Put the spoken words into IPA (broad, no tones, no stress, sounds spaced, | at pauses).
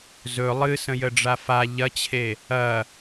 z ɵ lˠ ɨ s ə̃ j ə ɖ͡ʐ a f a ʎ ɐ t͡ɕʰ e | ɐ